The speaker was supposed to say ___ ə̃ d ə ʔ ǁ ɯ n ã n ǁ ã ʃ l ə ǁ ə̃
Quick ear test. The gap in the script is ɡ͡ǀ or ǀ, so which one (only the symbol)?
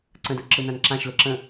ǀ